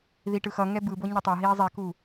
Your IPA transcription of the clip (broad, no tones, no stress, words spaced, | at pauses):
ðiʈɯxʌŋɛ bɯ boɲɛtˤaɦiː zˤiku